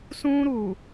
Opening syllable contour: high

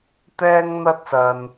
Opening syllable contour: high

